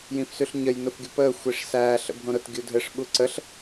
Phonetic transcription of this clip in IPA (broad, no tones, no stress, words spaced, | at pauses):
jĩfsʉɬɲəj nʊfɡʲʊpəː xʷiʂsæː ɬə̰bʱõɾʊt ɡʲudʱɘʂ ɓuǀəɬ